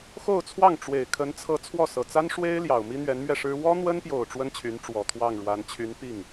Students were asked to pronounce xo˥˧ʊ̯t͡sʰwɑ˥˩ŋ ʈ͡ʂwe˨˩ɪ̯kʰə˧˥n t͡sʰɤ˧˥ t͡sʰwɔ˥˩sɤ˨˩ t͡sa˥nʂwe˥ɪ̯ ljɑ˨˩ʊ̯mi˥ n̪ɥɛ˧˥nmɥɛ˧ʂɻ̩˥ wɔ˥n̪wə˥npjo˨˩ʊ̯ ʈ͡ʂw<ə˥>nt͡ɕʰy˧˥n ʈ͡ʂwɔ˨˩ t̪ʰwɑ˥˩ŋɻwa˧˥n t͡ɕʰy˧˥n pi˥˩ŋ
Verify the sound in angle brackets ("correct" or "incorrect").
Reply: correct